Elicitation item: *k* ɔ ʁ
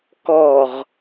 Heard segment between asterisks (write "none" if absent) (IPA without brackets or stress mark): k